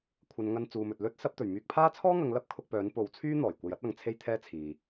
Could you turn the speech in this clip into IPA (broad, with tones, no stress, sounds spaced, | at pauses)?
kʷʰ ɐ˨˧ n ŋ ɐ˧ n t͡s uː˨ m ɵ˨ t̚ l ɵ˥ t̚ s ɐ˨˥ p̚ t̪ ɵ˨˩ ɥ m yː˧ k̚ pʰ aː˥ t͡sʰ ɔː˥ ŋ ɐ˨˧ ŋ l ɐ˥ p̚ kʰ ʊ˧ k̚ p œː˨˥ n p o˨˥ w t͡sʰ yː˥ n̪ ɔː˨˩ j kʷ ɐ˧ j ɐ˥ t̚ ɐ˨˧ ŋ t͡sʰ e˧ j t̪ʰ ɛː˧ t͡sʰ iː˨